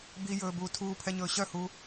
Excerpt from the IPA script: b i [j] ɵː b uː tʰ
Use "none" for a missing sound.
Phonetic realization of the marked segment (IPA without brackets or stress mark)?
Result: j